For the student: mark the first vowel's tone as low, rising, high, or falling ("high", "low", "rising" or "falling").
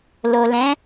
low